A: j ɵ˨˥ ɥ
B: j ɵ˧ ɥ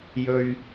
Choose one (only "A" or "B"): B